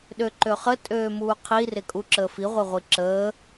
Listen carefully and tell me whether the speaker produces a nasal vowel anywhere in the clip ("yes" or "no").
no